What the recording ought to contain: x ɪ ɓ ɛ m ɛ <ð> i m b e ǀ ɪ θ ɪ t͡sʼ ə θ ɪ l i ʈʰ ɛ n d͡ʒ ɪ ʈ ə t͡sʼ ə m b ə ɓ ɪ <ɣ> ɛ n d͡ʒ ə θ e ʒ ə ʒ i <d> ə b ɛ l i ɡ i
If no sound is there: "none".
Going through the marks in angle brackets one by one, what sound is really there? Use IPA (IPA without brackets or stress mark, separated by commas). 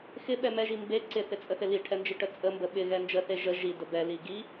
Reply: ʒ, ɣ, d